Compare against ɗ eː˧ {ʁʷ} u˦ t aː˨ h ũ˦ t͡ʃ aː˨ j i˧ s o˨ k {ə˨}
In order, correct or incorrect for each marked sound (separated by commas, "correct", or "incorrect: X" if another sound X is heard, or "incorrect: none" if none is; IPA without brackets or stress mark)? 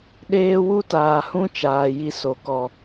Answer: incorrect: w, incorrect: ɔ˨